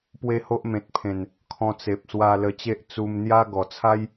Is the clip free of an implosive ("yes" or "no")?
yes